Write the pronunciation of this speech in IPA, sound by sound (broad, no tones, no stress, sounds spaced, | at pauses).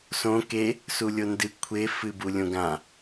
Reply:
s õ k e | s u lʲ o n d ɨ kʷʰ e f ɨ b u lʲ õ ɡ ã